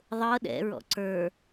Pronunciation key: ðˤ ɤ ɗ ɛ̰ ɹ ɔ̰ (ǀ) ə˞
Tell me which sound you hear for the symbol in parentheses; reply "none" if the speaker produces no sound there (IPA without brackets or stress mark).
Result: ǀ